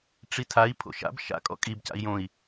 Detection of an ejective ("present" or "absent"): present